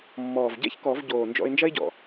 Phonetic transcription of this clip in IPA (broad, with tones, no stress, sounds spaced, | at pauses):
mː ɔː˨˩ v ɟ ɛ̰˥ ç k ɔ˨˩˦ v ɟ oː˨˩ n d͡ʒ ɔ̰˧ ɪ̯ n d͡ʒ ɐ˥ ɪ̯ ɟ ɔ̰˨˩